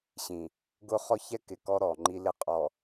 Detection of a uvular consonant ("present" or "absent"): present